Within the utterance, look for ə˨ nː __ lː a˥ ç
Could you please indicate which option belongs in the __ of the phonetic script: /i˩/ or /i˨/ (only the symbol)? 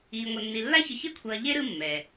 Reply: i˨